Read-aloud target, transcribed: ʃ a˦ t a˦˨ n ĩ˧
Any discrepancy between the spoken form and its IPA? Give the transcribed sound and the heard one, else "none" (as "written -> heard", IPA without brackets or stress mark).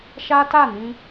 none